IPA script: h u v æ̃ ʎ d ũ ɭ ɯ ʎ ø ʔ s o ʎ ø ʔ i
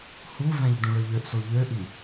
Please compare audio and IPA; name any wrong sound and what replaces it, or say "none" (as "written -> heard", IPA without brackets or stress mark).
none